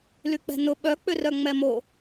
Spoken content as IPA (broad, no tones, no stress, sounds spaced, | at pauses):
l y k͡p ɛ̤ n ʊ ɓ œ k͡p ʏ r œ ŋ͡m ɛ m o